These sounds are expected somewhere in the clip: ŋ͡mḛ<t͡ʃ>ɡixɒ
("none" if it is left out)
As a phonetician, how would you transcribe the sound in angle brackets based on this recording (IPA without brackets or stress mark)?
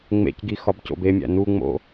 c